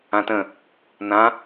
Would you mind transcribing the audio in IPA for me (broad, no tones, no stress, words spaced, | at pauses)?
ãtə̃ | nã